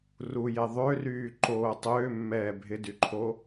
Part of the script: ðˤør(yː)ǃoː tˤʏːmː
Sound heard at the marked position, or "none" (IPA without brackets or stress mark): yː